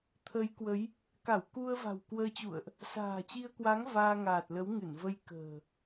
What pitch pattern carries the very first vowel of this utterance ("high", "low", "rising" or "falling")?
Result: rising